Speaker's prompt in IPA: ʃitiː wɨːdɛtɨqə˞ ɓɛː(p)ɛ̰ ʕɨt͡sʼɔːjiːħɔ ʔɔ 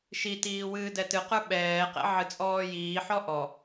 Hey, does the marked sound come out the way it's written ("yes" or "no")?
no